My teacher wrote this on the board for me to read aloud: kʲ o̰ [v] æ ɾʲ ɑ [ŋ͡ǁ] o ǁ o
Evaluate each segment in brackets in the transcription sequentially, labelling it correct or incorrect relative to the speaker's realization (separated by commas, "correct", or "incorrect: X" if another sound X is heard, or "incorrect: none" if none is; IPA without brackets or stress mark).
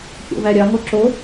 correct, incorrect: ŋ